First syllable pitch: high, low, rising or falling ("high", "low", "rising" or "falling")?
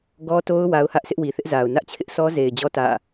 high